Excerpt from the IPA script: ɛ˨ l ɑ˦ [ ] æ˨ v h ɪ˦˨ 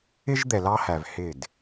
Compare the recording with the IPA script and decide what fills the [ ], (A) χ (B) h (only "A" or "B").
B